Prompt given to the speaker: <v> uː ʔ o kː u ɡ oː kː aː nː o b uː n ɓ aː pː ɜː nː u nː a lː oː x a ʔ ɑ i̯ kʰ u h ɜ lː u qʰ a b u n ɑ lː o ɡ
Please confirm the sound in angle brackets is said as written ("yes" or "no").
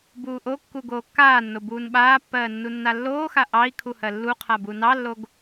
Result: no